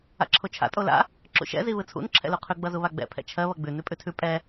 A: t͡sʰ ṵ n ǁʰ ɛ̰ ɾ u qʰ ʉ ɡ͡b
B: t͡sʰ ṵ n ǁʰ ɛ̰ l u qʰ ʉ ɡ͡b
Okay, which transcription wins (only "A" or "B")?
B